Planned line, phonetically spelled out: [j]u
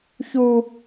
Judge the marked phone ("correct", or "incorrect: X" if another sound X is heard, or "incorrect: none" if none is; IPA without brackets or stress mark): incorrect: ç